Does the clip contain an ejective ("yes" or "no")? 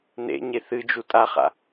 yes